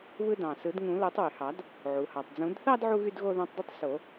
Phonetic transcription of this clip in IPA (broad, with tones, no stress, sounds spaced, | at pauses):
β ɯ˧ d ɑ̃˩ s ɯ˨˩˦ d ŋ ũ˨˩˦ l o˨˩˦ tˤ w y˩ h ɑ˨˩˦ d | ʕ u˩ h ɑ˩ tˤ d͡z ũ˨˩˦ d θ ɑ˥˧ d ʕ u˧ ɣ y˥˧ d ɣ o˥˧ ð ɑ̃˧ tˤ d e˥˧ tˤ s o˨˩˦